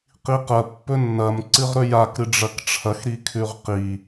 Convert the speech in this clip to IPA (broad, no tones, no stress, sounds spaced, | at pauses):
q i q ɐ pː ɵ nː ɐ m ǀ ɨ ʁ ɾ ɵ j a k ɾ ɨ ɖ͡ʐ ɐ k ʈ͡ʂʰ ɐ x ɾ i kʰ ʉ ʁ q i